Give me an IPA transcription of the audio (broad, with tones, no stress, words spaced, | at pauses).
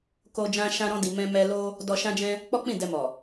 ko˧ d͡ʒã˧ʃã˧ɾɔ̃˧di˨ mɛ̃˧mɛ˧lo˦ | dɔ˧ʃã˦d͡ʒɛ̃˦ | k͡pɔ˦k͡pĩ˦˨dɛ˧mɔ˨